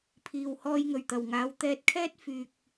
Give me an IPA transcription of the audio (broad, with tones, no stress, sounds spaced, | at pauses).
pʰ iː˨ w h ɔː˧ j ŋ ɵ˨˩ ɥ t̪ ɐ˨˩ w ŋ aː˨˧ w t̪ ɛː˧ t̚ kʰ ɛː˥ t̚ f yː˧ k̚